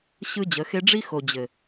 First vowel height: high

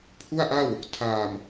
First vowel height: high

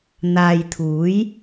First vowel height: low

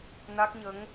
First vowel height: low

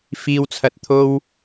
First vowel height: high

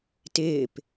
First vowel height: high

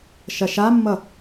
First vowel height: low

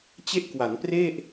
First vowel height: mid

